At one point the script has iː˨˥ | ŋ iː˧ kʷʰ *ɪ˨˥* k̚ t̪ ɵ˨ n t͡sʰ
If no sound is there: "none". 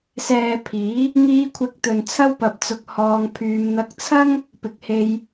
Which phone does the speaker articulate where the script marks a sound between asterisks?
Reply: ɪ˨˥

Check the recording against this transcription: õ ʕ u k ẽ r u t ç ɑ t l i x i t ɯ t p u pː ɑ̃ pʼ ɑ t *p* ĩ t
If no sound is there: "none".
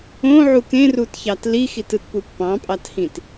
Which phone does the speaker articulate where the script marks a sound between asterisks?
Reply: h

